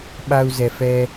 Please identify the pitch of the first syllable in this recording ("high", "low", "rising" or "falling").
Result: high